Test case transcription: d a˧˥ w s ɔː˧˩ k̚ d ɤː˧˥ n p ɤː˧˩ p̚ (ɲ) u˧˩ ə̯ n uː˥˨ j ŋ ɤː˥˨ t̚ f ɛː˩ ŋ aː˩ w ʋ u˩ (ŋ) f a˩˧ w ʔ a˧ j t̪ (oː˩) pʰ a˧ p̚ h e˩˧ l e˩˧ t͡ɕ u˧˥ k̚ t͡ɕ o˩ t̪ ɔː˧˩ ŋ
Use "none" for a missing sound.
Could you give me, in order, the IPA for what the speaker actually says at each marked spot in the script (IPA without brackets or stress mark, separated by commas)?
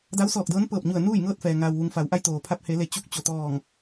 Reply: ɲ, ŋ, oː˩